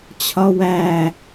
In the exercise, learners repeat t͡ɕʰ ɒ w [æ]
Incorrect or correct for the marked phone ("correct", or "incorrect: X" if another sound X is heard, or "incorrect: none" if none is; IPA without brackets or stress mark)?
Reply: correct